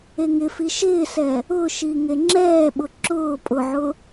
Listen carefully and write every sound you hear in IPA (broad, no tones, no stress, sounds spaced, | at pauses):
e ŋ ɪ f i ʃ ɪː s ɛ | ʊ ʃ i ŋ e ŋ͡ǁ ɛː ɓ ʊ ǁ ʊː pʼ ʊ ʕ ʊ